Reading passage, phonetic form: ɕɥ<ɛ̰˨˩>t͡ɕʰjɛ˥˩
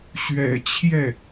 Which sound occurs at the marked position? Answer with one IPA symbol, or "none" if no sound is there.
ɛ̰˨˩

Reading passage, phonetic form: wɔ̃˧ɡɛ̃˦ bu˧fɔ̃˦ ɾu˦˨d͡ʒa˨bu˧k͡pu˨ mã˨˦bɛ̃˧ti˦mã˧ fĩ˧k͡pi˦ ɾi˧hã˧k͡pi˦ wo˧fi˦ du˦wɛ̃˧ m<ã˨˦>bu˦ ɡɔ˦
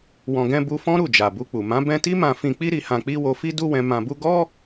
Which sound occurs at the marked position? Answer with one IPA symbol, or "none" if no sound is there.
ã˧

